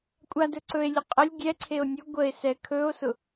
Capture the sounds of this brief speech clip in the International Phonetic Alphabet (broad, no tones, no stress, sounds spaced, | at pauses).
kʷʼ a d ɵ ǀ ɵ e̯ lʲ ʊ qʼ ə lʲ ɡʲ ɛ ǀʰ e o̯ nʲ ʊ ɡʷ ə e̯ s ɛ kʰ ɵ o̯ s ʊ